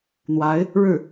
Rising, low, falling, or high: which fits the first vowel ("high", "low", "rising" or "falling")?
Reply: rising